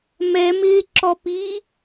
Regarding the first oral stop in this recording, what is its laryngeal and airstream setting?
click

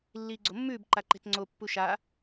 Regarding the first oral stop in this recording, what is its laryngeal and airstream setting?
click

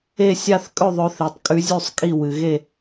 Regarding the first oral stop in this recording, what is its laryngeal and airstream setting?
ejective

